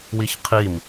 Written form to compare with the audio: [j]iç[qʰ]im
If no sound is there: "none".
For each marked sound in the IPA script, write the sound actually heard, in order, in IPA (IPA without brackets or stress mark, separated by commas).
w, qʰ